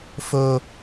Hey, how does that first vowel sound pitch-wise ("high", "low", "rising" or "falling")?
high